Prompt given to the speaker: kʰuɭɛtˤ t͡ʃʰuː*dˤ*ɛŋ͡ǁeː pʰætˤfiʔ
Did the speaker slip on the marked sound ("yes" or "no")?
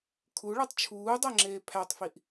no